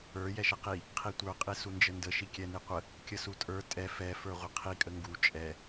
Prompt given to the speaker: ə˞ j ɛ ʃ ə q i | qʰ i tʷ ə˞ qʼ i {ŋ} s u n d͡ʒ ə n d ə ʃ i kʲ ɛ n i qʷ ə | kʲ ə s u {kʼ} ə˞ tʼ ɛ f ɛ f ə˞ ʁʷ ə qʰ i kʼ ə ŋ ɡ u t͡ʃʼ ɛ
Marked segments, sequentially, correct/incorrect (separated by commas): incorrect, incorrect